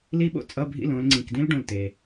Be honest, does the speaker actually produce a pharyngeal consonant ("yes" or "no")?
no